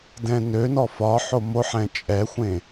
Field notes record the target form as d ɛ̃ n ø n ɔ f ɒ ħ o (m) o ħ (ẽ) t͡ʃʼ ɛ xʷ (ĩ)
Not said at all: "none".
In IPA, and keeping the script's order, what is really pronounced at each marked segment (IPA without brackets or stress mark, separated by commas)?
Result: m, ɛ̃, ẽ